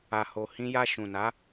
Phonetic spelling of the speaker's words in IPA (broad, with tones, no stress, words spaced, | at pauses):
a˨ho˨ hĩ˧ ja˧ ʃũ˨na˨˦